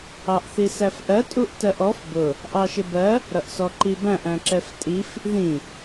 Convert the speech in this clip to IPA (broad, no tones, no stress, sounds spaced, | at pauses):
ɑ ʔ θ i s æ f ʔ ɜ tʼ u ʔ t ɜ ʔ ɔ f b ʊ | ʔ ɑ ʃ ɪ b ɜ | ɾ ʌ ʔ s ɔ ǃ i b æ̃ ʔ æ̃ ǁ ɛ f tʼ i f | ð ĩ